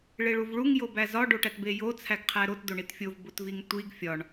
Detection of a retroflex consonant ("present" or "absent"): present